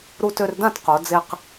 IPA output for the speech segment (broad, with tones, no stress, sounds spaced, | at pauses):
ɾ u˧ t ø˧ r d ã˥˨ t q o˩˧ d͡z e˧ q